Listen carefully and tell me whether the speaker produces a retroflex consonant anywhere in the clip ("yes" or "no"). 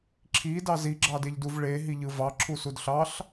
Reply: yes